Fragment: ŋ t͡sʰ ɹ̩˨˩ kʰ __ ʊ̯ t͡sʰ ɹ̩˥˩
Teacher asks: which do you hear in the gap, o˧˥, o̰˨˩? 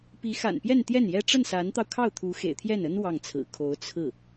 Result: o˧˥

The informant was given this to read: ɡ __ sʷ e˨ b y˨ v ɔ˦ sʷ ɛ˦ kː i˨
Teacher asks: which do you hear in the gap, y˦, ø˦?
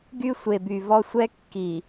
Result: y˦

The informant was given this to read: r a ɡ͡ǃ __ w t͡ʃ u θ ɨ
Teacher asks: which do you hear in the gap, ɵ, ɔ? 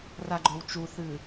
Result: ɵ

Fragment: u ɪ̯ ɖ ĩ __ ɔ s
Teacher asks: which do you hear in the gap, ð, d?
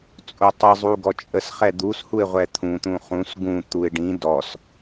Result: d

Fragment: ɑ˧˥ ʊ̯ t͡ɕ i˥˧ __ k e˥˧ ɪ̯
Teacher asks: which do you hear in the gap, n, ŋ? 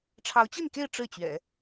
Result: n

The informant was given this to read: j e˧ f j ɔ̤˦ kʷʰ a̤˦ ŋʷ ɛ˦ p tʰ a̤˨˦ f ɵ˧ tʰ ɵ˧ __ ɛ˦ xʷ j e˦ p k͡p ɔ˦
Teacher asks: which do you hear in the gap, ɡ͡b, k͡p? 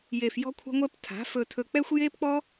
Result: k͡p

